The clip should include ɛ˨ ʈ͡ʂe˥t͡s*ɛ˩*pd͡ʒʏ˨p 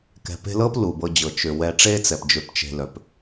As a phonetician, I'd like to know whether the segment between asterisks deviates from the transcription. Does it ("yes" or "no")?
no